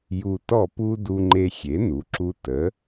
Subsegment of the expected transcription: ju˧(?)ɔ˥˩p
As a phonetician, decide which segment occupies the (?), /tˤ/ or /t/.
t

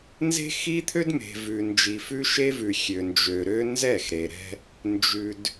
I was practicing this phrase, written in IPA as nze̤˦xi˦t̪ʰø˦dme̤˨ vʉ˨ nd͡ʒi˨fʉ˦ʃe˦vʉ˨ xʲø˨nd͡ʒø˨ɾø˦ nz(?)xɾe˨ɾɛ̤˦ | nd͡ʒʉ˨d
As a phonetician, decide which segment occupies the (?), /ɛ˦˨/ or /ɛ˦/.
ɛ˦˨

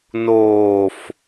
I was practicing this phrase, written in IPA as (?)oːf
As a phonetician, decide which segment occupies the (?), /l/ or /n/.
n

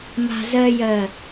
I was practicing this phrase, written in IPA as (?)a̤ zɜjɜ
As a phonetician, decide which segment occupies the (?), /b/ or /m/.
m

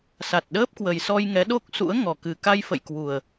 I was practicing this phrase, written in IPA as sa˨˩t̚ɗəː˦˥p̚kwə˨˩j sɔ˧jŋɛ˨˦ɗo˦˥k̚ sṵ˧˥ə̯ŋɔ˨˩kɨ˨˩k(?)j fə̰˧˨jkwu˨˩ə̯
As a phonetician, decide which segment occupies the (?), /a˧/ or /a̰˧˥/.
a˧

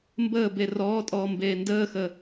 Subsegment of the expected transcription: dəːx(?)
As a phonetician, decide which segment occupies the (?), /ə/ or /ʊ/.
ə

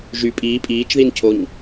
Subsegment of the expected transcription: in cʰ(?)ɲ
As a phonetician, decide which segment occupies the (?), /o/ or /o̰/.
o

